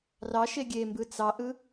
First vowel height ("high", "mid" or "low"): low